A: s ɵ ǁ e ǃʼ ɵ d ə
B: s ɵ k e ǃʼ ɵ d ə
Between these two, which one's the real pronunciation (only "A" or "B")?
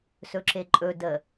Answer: A